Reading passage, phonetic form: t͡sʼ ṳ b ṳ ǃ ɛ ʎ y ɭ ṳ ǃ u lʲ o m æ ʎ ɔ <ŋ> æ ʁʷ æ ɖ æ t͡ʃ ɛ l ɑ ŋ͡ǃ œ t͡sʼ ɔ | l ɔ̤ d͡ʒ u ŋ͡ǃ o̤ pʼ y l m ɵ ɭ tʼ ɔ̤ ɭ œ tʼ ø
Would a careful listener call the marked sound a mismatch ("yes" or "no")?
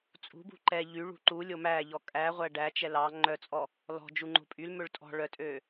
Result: yes